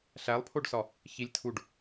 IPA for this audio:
ɬ æ lˠ pʰ o ɖ s ɒ | ç i lʲ tʰ u ɖ

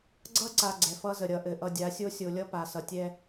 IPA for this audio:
ɡ͡ǀ ʌ˦ ǀ a˨ ɡ͡ǀ ɛ˨ f ʌ˦ z ə˨ ɾʲ ʌ˨ ʔ ɘ˨ ʔ ʌ˨ dʲ a˨˦ sʲ o˦ sʲ o˨ lʲ ʌ˦ p a˨ s ʌ˨ tʲ ɛ˦

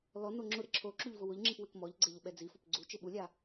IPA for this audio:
l ɔ n o ŋ͡ǁ ʊ ɾ ɪ ǁʰ o ǁ u ʎ v ʊ w ʊ ʎ ŋ͡ǁ i p w ɪ k m ɔ ʎ ɡ͡ǀ e ʎ ʊ ɓ ɛ d͡z i f o p ɡ͡ǀ u t͡ʃ ɪ ɓ u lʲ a

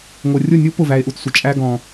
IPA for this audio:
ŋʷ ə˨ rʲ ʊ˦˨ nʲ u˦ p ʊ˦˨ v æ˧ e̯ ʔ u˧ t sʷ ɪ˨ t͡ʃʼ æ˦ ɡ ɔ̃˧

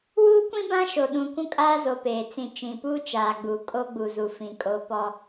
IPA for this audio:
w uː˦ kʷ ĩ˦ b ã˦ ʃ o˨ ɗ ũ˨ kʷ ũ˦ kʼ aː˦ z o˨ p eː˨ t͡s ĩ˨ t͡ʃ ĩ˨ p uː˦ t͡ʃ aː˨ ɡ͡b uː˨ kʼ o˦ ɡ͡b u˨ z u˨ f ĩ˨ kʼ o˦ p ɔ˦

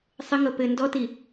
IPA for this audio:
sˤ ɘ ŋ ɤ p ɘ n d ɔ t i

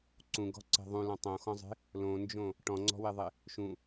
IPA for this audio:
ǀ ũ ɡ ɔ̤ ǀ e̤ ðˤ ũ l ɔ̃ tˤ õ x ɔ̃ zˤ e̤ | l õ n d͡ʒ õ | ʈ ɔ̃ ŋ͡ǀ ɔ̤ w e ðˤ e | ʃ ũ

